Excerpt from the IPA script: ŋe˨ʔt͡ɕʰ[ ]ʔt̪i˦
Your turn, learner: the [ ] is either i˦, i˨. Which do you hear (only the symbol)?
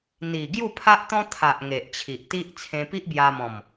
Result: i˨